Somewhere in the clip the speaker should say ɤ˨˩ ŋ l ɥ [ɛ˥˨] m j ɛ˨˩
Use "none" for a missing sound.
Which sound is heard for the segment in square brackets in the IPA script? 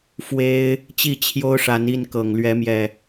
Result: ɛ˨˦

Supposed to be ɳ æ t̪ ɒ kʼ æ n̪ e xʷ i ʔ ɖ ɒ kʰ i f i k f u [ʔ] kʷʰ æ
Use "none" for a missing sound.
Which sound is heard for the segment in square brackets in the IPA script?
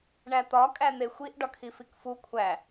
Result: none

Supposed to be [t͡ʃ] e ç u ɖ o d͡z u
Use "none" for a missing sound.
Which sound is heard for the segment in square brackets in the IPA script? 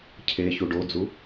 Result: cʰ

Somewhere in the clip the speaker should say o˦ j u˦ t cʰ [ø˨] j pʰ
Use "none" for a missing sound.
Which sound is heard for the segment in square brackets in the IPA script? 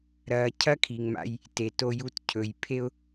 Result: ɵ˨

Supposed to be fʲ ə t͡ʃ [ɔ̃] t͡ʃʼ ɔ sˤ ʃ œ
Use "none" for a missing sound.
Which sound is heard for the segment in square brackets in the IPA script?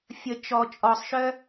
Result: ɔ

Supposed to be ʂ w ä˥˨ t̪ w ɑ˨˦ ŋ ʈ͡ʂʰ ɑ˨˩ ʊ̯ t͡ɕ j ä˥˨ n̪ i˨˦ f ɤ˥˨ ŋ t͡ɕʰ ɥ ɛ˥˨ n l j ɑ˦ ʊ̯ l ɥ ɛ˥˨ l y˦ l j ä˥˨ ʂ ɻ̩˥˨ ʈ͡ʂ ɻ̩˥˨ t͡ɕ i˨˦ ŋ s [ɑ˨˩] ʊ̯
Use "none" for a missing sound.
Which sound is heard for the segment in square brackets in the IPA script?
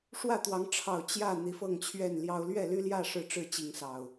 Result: ɑ˨˩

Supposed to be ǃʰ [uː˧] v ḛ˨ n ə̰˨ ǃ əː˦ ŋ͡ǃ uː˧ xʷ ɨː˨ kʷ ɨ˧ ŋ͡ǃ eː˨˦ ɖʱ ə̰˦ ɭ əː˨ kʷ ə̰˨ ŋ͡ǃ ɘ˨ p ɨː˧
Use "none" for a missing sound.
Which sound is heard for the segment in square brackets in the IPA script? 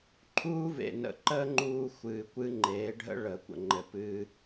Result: uː˦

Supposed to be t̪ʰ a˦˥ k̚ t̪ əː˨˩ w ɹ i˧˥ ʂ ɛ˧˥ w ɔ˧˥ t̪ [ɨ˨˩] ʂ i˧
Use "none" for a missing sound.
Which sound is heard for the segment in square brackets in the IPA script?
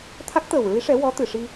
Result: ɨ˨˩˨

